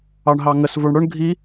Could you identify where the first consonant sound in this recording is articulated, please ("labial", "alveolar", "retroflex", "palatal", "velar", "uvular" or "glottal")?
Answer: retroflex